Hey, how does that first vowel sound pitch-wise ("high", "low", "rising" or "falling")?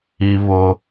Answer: high